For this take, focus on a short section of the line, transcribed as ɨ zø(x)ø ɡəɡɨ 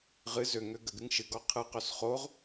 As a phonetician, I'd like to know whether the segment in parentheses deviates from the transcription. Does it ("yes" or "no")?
yes